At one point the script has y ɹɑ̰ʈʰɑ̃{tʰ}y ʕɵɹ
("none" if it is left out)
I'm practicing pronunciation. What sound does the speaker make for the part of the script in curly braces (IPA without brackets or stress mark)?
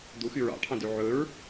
d